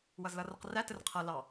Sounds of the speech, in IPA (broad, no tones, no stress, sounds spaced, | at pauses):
w ʌ z l ʌ r ʌ q r æ t ə r qʰ ʌ l ɑ